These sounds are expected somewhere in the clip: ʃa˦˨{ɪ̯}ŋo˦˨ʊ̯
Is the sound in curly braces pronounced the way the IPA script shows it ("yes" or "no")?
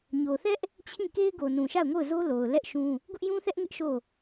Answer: no